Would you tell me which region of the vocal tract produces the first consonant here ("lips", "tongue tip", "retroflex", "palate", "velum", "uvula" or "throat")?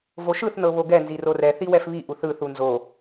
lips